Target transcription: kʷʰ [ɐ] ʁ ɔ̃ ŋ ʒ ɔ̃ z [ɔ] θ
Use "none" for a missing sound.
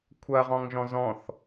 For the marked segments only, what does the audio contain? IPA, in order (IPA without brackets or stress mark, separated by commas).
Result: ɐ, ɔ̃